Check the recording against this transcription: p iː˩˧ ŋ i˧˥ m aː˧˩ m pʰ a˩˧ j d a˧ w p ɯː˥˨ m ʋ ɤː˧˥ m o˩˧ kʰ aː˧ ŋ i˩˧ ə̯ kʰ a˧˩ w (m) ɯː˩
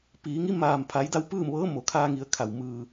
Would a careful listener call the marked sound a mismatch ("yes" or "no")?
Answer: no